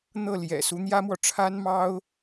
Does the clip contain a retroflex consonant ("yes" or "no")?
yes